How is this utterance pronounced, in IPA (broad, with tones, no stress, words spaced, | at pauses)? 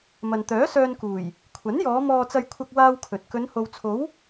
mɐ˨nt̪œː˨˥sœː˧nkuː˨˩j | kʷʰɐ˨˥njɔː˨˧ mɔː˧t͡sɐ˧j kʷʰɐ˧k̚waː˧w kʰɵ˨t̚ kɵ˨˧nho˨wt͡sʰo˨˥w